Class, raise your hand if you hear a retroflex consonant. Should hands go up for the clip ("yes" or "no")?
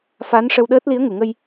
yes